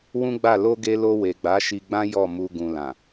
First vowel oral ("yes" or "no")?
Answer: no